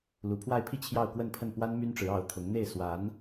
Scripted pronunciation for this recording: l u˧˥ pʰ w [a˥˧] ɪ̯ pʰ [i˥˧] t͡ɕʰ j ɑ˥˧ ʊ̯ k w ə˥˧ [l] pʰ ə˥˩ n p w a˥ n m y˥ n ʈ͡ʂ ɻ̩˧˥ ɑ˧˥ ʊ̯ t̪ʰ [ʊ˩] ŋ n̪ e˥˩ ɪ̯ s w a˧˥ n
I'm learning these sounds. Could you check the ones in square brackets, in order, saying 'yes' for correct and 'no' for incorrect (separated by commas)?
yes, yes, no, no